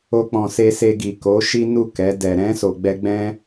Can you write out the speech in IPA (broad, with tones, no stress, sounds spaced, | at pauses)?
o˧ k͡p ɔ̃˨ s e˧ s e˧ ɡ i˨ k o˨˦ ʃ i˦ n u˦˨ k ɛ˨˦ d ɛ˧ ɾ ɛ̃˦ s o˧ ɡ͡b ɛ˦ ɡ͡b ɛ̃˦